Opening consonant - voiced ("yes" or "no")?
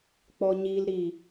no